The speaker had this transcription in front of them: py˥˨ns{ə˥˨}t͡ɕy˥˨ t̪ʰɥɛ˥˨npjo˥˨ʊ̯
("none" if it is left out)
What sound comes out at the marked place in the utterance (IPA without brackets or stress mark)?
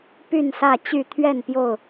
ä˥˨